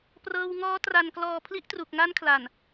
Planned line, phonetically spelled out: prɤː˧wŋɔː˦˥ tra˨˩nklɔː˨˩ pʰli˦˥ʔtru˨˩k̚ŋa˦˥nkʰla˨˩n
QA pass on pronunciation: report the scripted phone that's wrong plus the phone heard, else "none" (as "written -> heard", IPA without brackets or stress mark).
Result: none